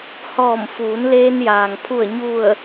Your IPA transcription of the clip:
h ɔː˧˩ m f uː˩˧ n l eː˧ n j aː˩ ŋ pʰ u˧˩ ə̯ ɲ u˧˩ ə̯

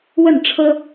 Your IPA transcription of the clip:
w ə˥˨ n ʈ͡ʂʰ ɤ˦

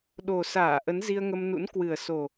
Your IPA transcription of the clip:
ɗ o˨˩ s aː˧˩ ʔ ə˨˦ n z i˧ ə̯ ŋ ə˧ m n ṵ˧˥ n k w ɨ˨˩ ə̯ s o˨˩

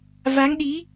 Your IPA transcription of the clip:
v a˨˦ ŋ ɗ i˨˦

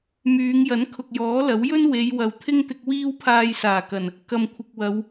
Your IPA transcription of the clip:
m yː˨˧ ŋ j ɐ˨˥ n kʰ ʊ˨ k̚ j ɔː˨˥ l ɐ˨˥ w j ɵ˥ n w e˨˧ j w ɐ˨ w t̪ʰ ɪ˥ ŋ t̪ ɪ˧ k̚ w iː˥ w pʰ aː˧ j s aː˨˩ k ɐ˨˩ n | k ɐ˨ m kʷʰ ɪ˨ k̚ w ɐ˨˧ w

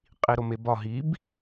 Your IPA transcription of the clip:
qʼ i ɾ o m e b ɒ ɦ i b

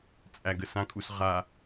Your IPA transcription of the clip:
t͡sʼ æ ɡ ə s ã kʼ u s ʁ a

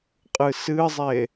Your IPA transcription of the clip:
qʼ ɨ s ɨ zˤ e

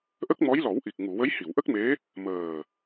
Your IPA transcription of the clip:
ʔ ə˦˥ k̚ m ɔ˧˥ j l ɔ˨˩˦ w ʔ i˨˩ k̚ ŋ u˨˩˨ w ə˧˥ j h i˨˩˨ w ʔ ə˦˥ k̚ m e˧˥ | m əː˨˩

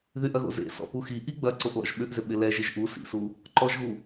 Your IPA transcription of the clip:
ð y ʔ ɐ ɣ o̰ z ḛ s ɔ̰ p u x i ʔ i ɡ͡b ɐ ǀ o ʔ l ɔ̰ ʒ ɓ ʏ ʔ z ʏ ɓ ɪ l ɛ ʒ ɪ ʒ ʔ u s ḭ s u | ǃ ɔ ʒ ɣ u

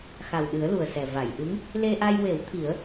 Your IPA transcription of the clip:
x a˨˩ w ɗ ɨ˨˩˦ ə̯ l u˨˩ ə̯ s ɛ˨˩ v a˨˩˨ j ʔ ɨ˧˥ ŋ | l e˧ ʔ a˧ j w e˨˩˦ w t̪ʰ i˨˩˦ ə̯

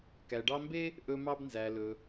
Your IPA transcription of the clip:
k æ˨ ɖ ɑ˦ m b e˥ | ʔ ɵ˦ m ɑ˦ b n z æ˨ l ɵ˨

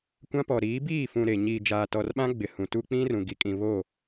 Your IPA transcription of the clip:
kʷ ã˦ p ɔ˨ ɾ iː˨˦ b iː˦˨ f ũ˨ ɾ e˨ ɲ iː˨ d͡ʒ aː˨ t ɔ˨ r ɓ ã˦ ɡ͡b ɪ˨ h ũ˨ t u˦ k͡p ĩ˦ r ũ˨ ɡ i˨ kʼ ĩ˨ β o˦˨

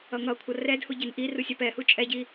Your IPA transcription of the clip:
ʌ ŋ ʌ kʷʰ ʌ r ɛ d h u ɟ e n ʔ i r u sʲ a p ɛ h u t͡ʃʼ ɛ ɟ i

